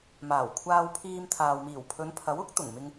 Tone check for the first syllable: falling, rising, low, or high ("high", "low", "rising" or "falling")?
low